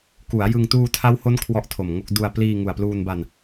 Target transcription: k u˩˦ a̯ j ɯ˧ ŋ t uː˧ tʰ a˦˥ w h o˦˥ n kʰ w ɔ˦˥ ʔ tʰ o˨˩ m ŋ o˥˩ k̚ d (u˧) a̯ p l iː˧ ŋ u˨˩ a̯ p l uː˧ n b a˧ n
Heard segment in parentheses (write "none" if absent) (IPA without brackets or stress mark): u˧